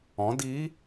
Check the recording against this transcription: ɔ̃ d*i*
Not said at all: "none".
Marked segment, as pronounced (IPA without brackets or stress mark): i